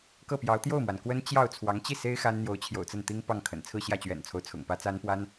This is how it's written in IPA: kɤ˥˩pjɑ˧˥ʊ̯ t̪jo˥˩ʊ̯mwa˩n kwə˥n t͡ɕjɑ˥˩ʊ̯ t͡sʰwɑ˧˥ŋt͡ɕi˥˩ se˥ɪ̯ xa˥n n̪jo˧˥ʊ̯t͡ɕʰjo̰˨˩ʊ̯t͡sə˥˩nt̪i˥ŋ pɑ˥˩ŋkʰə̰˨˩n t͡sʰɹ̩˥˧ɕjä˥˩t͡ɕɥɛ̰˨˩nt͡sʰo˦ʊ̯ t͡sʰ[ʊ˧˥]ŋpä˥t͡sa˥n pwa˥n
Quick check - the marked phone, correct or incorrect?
incorrect